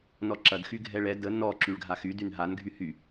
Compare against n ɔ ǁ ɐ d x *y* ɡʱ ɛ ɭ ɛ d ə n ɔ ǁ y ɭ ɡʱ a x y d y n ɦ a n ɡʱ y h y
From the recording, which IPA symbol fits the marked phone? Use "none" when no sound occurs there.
y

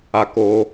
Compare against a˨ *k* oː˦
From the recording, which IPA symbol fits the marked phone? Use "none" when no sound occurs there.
k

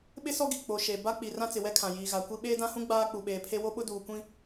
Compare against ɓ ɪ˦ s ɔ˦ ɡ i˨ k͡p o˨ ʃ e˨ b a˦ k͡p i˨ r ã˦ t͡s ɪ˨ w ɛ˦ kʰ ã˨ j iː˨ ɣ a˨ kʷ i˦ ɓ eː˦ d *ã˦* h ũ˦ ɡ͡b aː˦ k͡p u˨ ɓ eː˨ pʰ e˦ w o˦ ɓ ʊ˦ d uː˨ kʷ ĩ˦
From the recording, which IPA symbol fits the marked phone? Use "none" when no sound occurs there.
ã˦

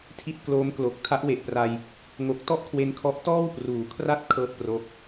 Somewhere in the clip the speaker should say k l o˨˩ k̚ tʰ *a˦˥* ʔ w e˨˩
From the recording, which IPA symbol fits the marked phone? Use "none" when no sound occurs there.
a˦˥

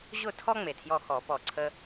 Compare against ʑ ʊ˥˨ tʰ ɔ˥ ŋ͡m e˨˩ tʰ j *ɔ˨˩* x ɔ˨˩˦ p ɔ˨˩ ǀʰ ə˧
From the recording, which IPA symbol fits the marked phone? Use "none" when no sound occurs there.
ɔ˧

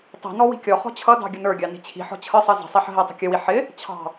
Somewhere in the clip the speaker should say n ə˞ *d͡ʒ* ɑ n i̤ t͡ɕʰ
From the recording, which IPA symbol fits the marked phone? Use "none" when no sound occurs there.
ɡʲ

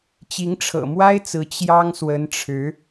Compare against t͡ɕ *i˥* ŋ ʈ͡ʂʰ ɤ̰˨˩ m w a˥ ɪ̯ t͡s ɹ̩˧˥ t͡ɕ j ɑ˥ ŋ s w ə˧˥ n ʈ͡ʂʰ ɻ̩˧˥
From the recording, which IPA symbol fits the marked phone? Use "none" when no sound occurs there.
i˧˥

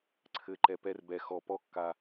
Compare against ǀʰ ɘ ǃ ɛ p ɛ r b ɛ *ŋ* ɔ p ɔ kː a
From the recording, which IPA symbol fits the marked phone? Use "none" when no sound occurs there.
x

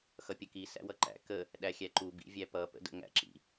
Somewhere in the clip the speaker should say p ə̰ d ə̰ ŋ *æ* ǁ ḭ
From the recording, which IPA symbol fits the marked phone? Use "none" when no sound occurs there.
æ̰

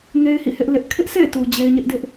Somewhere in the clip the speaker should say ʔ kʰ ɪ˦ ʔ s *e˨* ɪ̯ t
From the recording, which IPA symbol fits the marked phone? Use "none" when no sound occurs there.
ḛ˦˨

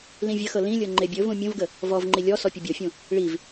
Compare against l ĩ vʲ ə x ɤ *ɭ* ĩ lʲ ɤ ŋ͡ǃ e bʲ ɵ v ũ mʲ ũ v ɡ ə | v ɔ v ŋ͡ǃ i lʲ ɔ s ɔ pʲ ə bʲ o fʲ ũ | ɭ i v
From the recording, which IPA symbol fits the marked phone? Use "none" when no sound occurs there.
l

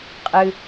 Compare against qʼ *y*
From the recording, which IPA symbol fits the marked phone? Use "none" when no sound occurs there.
ɨ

